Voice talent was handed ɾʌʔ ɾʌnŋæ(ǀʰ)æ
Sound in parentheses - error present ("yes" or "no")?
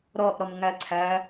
no